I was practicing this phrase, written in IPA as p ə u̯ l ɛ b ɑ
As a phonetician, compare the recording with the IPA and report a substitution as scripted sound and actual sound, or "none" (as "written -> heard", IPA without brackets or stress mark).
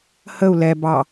p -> h